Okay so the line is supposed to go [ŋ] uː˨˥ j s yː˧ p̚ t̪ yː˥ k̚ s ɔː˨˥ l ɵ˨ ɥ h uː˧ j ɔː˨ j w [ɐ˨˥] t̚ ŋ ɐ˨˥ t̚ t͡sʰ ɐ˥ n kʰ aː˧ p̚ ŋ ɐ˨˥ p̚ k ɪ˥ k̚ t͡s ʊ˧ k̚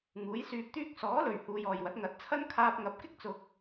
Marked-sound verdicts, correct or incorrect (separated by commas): correct, correct